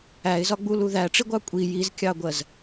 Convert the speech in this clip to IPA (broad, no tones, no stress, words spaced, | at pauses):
æɪ̯zɒɡ͡bulu ðæʈ͡ʂiɡʷɑ kʷʼi jizkʲɑɡʷɜz